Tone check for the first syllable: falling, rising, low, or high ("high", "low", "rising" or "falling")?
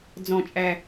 low